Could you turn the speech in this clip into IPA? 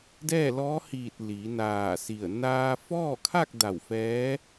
dɛː˥˨lɔː˧˥hiː˧˩t̚ liː˩˧naː˧˩si˧˩ə̯ naː˧fɔː˥˨kʰa˥˨k̚ da˧˩wfɛː˧˥

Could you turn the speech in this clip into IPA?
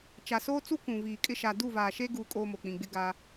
t͡ʃa˨soː˦t͡su˦ kũ˨viː˨kʼɪ˦ ʃa˨du˦˨vaː˨ʃe˦ ɡuː˦kʼo˦mo˨ k͡pĩ˨ɡ͡bɪ˦ɡa˦

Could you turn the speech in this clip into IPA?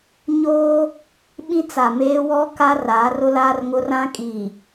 ɲoː˦ | ɓĩ˦t͡sa˨meː˦ wɔ˦ ka˦ raː˨˦rʊ˦laː˦rŋʊ˦ rã˦ kʼiː˨

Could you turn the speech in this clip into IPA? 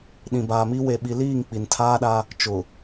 ɗĩ˨baː˨mi˦ we˨ɓi˨ liː˦˨ŋ k͡pi˨ntʰaː˦ɗa˦ | t͡ʃʊ˨

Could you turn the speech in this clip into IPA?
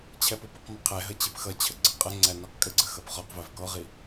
t͡ɕʰɛpʊpəq məqʰɛɦə t͡ɕipxʌt͡ɕʰə ɡ͡ǀəqʼəŋ͡ǀæ niqkʼəɡ͡ǀə xʌpχɔqvæv kɔʁi

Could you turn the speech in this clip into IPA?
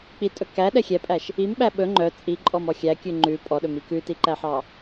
k͡pitʼɵ kæɗɛ xʲɛpʼæʃ | imɓæ ɓɵ ŋ͡ǃœ t͡sʼiǃʼɔmɔ xʲækʲʉ ŋ͡ǃʉ pʼɔɗɵmi kʉtiǃæħɑ

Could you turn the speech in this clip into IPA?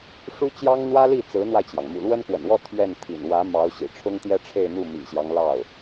ʂu˥t͡ɕjɑ˥ŋn̪wä˥li˥˩ t͡sɹ̩˧˥n̪wa˧ɪ̯t͡ɕjɑ˩ŋ mṵ˨˩lwə˥nkwə̰˨˩nwɔ˥˧ t̪ʰɥɛ˥˩nt̪ʰḭ˨˩n wä˧˥ mɑ˧˥ʊ̯ ɕḭ˨˩ʈ͡ʂʰʊ˥ŋ t̪jɛ˥ʈ͡ʂʰe˥˧ɪ̯n̪u˥˩ mḭ˨˩ɕjɑ˦ŋ lɑ˥˩ʊ̯

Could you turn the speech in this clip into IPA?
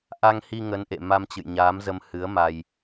ʔa˧ŋhi˧ ŋə˨˦nʔḛ˧˨ ma˧mt͡ɕɨ̰˧˨jɲaː˨˦mzə˧m hɨ˨˦ə̯ma˧j

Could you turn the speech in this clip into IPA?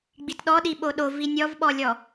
ɡ͡bitɗɔɗi ɓoɗovi nʲɔvɓɔlʲɔ

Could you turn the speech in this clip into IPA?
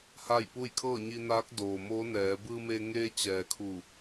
ha˥˨jpu˥˨j kʰɤː˥˨ɲi˧naː˧˥k̚ doː˩ moː˧˥nɛː˩˧ bɯː˧meː˧ ŋeː˧t͡ɕɛː˩ kʰu˧˩

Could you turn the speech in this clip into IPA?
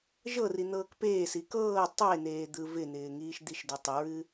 ʒɤri n̪ɤːkpeːsi kɤː tˤeneː d̪ɯvɪn̪ɪː ŋiːʃd̪iʃdɨ tˤɪɹɨ

